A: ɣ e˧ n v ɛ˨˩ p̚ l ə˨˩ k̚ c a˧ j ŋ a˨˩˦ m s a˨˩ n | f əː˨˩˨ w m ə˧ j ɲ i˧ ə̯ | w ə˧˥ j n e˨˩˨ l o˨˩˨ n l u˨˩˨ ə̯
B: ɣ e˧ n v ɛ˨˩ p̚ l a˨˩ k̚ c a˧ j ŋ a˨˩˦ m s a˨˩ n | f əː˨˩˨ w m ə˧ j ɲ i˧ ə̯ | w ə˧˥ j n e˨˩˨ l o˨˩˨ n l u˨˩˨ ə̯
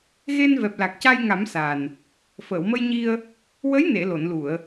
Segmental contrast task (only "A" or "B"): B